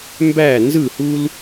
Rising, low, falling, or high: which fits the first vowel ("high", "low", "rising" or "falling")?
falling